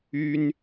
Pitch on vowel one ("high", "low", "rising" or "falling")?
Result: high